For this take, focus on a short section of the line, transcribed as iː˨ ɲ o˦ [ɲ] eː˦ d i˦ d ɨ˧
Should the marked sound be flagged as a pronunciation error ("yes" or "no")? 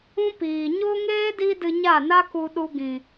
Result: yes